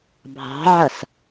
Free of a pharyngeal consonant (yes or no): no